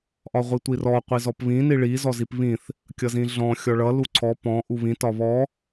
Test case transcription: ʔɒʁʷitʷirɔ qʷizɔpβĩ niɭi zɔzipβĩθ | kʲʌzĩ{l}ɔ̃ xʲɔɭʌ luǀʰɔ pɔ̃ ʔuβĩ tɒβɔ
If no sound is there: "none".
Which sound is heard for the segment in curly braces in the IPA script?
ɮ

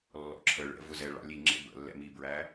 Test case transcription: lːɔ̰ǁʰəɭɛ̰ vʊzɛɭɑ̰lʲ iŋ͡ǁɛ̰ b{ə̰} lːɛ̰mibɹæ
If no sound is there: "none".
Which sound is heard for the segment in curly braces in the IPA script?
ə̰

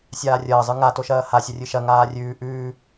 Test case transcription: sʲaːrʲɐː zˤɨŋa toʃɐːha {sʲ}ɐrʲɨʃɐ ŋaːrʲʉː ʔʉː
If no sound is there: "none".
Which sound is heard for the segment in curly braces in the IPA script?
sʲ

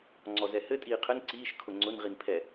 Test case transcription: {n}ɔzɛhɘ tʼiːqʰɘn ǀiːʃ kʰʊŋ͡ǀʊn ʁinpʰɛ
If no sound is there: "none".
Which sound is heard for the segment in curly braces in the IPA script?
ŋ͡ǀ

